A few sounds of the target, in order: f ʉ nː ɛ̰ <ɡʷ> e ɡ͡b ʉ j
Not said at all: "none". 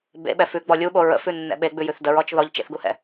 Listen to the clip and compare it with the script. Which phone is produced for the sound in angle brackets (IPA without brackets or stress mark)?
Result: ɓ